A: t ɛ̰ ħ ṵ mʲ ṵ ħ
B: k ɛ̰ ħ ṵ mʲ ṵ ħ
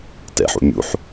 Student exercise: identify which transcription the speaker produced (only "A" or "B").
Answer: A